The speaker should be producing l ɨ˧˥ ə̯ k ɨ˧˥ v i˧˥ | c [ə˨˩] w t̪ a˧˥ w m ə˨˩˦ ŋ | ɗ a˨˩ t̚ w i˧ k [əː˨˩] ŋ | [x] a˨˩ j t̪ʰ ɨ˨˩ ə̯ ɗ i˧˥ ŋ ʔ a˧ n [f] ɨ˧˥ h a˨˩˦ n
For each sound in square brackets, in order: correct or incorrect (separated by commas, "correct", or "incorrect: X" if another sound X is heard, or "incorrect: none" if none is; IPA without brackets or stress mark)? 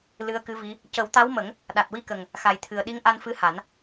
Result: incorrect: ə˨˩˦, incorrect: ə˨˩, correct, correct